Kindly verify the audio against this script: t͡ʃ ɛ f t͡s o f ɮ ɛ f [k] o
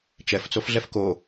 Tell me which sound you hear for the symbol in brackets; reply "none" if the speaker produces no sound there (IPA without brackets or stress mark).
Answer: k